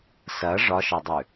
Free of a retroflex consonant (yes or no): no